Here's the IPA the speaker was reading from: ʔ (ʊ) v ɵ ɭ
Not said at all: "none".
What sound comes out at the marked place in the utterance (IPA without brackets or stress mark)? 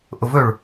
ʊ